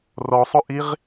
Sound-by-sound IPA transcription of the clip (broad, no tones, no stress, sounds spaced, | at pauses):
r ɔ sˤ ʊ ʔ i ʁ